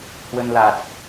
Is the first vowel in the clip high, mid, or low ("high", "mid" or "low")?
mid